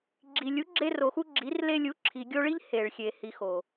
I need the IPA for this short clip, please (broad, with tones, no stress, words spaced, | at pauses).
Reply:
ɡ͡ǁi˨lʲu˨˦ ɡ͡ǁe˧ro˨xu˧ ɡ͡ǁi˨˦r le˧lʲu˨˦ ǁʰi˨ɡʲo˧ɭi˦ʎ he˨ɭxʲe˨ hi˨xo˨